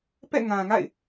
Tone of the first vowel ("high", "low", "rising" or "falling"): falling